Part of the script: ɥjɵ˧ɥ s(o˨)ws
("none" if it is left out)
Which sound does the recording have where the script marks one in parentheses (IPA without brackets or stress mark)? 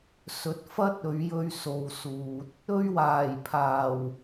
o˨